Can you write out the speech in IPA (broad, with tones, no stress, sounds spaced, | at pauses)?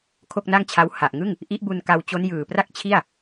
kʰ o˥˩ k̚ n a˥˩ ŋ t͡ɕʰ a˦˥ w h a˨˩ ʔ ŋ ɯ˥˩ ŋ | ʔ i˦˥ ʔ b u˧ n k a˧ w t͡ɕ o˦˥ n j ɯː˨˩ p r a˥˩ k̚ t͡ɕʰ i˥˩ a̯